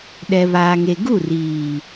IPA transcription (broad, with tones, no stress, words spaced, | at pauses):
ɗɛ˨βaː˨ŋe˨ ɡu˦˨riː˨